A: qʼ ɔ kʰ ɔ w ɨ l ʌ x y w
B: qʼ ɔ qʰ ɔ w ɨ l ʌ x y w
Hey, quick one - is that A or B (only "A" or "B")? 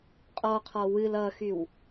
B